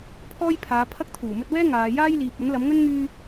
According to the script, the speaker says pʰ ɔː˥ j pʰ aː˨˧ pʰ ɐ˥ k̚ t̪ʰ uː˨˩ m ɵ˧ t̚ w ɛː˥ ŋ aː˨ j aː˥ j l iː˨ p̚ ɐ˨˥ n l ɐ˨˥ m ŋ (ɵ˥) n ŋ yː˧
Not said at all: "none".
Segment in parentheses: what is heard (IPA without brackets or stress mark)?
ɵ˥